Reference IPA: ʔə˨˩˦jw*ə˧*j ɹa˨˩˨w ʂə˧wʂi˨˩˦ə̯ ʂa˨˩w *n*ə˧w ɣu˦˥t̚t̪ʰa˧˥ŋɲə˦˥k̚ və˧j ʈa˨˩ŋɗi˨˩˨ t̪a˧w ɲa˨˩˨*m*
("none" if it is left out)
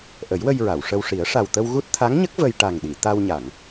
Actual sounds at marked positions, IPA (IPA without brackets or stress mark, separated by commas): ə˧, t̪, ŋ